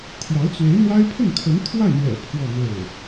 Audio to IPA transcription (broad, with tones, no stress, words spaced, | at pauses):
t̪ʰjɑ˧˥ʊ̯ t͡swe˧˥ɪ̯n̪wa˥ɪ̯ pʰə˥˩nkʰə˧˥nt̪ʰwa˥˩ɪ̯n̪ɥɛ̰˨˩ pʰwɔ˥˧n̪o˥˩ʊ̯